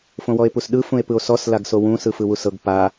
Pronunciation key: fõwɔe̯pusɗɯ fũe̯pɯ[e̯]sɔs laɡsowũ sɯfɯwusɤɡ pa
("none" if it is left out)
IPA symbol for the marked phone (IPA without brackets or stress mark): o̯